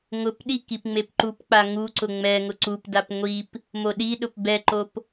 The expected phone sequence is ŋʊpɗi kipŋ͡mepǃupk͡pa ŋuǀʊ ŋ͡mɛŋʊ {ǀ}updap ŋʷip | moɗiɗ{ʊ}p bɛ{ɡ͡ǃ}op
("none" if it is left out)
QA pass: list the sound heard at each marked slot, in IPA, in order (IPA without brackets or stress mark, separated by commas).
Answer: ǀ, ʊ, ǃ